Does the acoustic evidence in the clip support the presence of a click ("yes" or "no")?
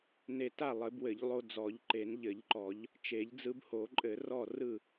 yes